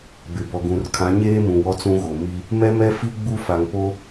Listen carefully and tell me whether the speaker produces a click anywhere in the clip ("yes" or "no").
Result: no